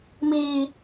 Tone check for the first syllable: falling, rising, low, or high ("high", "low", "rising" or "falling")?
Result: low